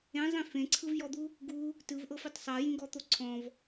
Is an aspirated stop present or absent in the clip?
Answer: present